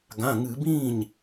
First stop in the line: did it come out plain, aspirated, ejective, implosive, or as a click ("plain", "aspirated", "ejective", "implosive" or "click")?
plain